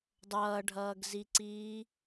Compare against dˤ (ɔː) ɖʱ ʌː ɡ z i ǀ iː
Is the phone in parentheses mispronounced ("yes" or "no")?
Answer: yes